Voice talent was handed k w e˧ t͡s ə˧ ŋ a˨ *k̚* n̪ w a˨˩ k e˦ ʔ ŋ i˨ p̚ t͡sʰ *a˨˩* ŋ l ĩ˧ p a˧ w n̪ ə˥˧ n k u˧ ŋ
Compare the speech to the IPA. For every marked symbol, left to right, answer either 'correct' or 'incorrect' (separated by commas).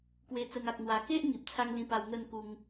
correct, incorrect